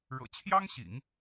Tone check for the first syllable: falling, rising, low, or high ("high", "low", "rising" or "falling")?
low